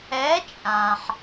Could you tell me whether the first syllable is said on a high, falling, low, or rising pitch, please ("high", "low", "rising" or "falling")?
rising